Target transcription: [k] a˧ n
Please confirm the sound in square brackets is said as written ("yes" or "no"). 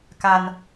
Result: yes